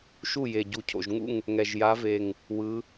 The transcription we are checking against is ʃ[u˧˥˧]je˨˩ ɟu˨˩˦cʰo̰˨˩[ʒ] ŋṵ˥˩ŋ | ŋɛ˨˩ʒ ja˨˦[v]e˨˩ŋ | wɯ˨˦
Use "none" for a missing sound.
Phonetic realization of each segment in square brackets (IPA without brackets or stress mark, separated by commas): u˥˩, ʒ, v